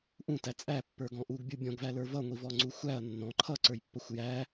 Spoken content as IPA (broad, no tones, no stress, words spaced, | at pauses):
ʔũtæ t͡sʼæpːə˞ɡɔ̃ ʔuɡbʲu bʲɔ̃ɡvælə˞ vʌŋʷivɔŋ͡ǀu xʷæɐ̯ nːɔ̃ ǃʰʌǀə˞jpːʌxʷ jæ